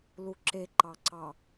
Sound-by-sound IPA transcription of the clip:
l u ǁ e ǃ ɑ ǀ ɑ

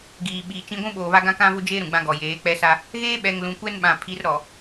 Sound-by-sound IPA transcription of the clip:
ɡ iː˨ ɓ iː˨ t͡ʃ ĩ˦ ɡʷ ũ˦ ɓ oː˨ β a˦ ɡ ã˦ k ã˦ v ʊ˦ d͡ʒ eː˦ ɾ ũ˨ ɡ͡b ã˦ ɡ ɔ˨ j eː˨˦ k͡p ɛ˦ s a˦ | ɣ eː˦ ɓ ɛ˨ ŋ l ũ˨ kʷ ɛ˦ n ɓ ã˨ pʰ i˨˦ r ɾ ɔ˨

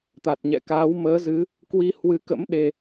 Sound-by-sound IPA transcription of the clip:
t̪ a˨˩ t̚ ɲ ɛ̰˧˨ k aː˨˦ w m əː˨˦ z ɨ˨˦ | k w i˧ h w ɨ˨˦ k ə̰˧˥ m ɗ e˨˩

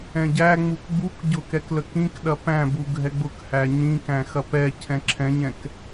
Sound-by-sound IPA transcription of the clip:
ɛ̃ ɟ æ ŋ͡m u k ɡ͡b u k ɟ ʊ k ɛ k l ə k ĩ k ɗ ɐ p æ̃ b u ɡʱ ɛ ɡ͡b ʊ k h æ ɲ ĩ k æ̃ x ɐ p ɛ cʰ ɛ̃ ǁʰ ɛ̃ ɲ ɛ̃ k

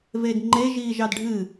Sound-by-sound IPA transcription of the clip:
v e d ŋ͡ǃ e ʒ iː ʒ ɑ d ɖʱ ɨ

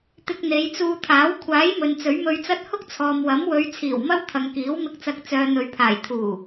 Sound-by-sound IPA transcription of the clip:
t̪ ɪ˧ k̚ n̪ e˨˧ j t͡s uː˧ t̪ʰ aː˨˥ w kʷʰ aː˨˥ j m ɵ˨ n t͡s ɵ˨˥ ɥ m ɵ˧ ɥ t͡s ɐ˥ t̚ h ʊ˥ k̚ t͡sʰ ɔː˨ m w ɐ˨˥ m w ɵ˨˧ ɥ t͡sʰ iː˨˩ w m ɐ˥ w t̪ʰ ɐ˨ ŋ k iː˨˥ w m ɪ˧ k̚ t͡s ɐ˨˥ k̚ t͡s œː˨ n̪ ɵ˨ ɥ pʰ aː˨˩ j t̪ʰ uː˨˩

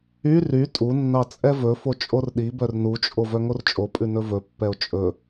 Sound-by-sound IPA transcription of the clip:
y r y tʼ u nː ɑ t͡sʼ ɛ v ɵ f o t͡ʃʼ o r ɗ i b œ r n u t͡ʃʼ o v œ ŋ o r t͡ʃʼ o pʼ ʉ n ɵ v ɵ pː ɛ o̯ t͡ʃʼ ɵ

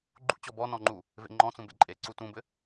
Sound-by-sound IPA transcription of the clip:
ɡ͡ǃ ṵ t͡ɕ ɔ b ɔ n ɔ̃ ŋ͡ǃ u | v ḛ ŋ͡ǃ ɔ̃ t͡s ũ b ḛ ǃʼ e ǀ u t ũ b ɘ

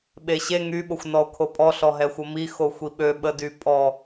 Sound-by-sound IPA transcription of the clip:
ɓ e ɕ e ŋ y ɓ o xʷ n ɔ o̯ kʰ o pʼ ɔ ɬ ɔ ɦ ɛ xʷ ə m i x o xʷ i ɓ ø ɓ ə d y pʼ ɔ

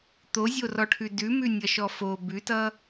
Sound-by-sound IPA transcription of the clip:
t̪ o zʲ o r ɔ ʈʰ ʉ d ʉ m ʉ nʲ ʌ ʃ ɔ f o b ʉ t ʌ

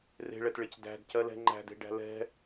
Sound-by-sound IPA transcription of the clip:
r e̤ ɭ ɛ t ɭ e c d æ̤ d c ɜ l ɛ̤ ŋ͡ǃ æ̤ d e̤ ɖ æ̤ l ɛ̤

